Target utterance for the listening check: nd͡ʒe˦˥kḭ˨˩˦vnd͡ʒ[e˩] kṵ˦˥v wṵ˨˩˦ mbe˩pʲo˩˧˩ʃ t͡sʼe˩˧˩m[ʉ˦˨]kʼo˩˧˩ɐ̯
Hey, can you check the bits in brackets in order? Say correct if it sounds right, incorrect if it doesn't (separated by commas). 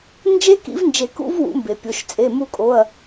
incorrect, incorrect